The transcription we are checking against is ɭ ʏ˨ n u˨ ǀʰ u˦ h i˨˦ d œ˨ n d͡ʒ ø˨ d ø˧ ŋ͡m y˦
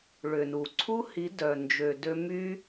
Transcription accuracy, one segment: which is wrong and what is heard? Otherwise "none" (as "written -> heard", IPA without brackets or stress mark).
ŋ͡m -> m